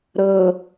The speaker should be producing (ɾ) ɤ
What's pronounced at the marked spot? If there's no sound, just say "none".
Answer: ɾ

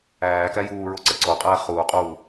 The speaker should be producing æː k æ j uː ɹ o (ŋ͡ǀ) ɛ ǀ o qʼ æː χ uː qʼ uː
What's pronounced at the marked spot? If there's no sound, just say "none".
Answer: ǀ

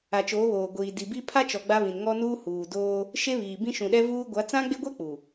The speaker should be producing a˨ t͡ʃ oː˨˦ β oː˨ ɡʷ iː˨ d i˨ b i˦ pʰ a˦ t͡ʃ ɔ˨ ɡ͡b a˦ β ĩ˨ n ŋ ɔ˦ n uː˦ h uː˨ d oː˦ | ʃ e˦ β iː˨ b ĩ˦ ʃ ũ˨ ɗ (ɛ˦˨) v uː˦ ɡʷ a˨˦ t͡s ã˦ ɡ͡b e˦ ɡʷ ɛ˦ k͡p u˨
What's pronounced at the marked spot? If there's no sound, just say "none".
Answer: ɛ˦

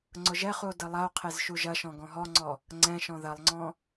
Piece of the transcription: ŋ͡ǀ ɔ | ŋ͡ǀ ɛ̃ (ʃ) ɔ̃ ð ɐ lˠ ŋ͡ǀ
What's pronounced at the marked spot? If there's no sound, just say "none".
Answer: ʃ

